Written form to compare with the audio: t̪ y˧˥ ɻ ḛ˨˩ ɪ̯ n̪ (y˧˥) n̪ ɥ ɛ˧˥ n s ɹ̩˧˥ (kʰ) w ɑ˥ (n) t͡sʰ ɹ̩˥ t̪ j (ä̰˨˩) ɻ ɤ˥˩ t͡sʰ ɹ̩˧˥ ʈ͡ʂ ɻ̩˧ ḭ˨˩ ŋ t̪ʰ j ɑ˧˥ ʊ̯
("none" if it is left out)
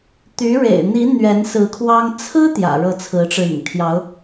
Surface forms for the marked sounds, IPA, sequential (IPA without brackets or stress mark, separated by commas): i˧˥, kʰ, ŋ, ä̰˨˩